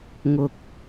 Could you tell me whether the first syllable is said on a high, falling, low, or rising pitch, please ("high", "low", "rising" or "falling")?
low